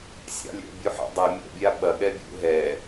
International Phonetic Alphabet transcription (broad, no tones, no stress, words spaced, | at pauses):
sʲɑ̰lʲɛ̰ bʲuħɑ̰dˤɐ mʲɛ̰ bʲaɓɐ ɠɛbʲṵ ɦɛ